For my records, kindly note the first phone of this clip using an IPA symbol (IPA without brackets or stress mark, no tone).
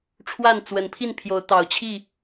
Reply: ʈ͡ʂʰ